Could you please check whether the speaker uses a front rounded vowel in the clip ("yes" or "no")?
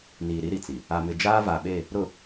no